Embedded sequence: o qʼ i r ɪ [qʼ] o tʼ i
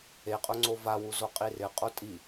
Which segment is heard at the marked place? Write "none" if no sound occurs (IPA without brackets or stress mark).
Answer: qʼ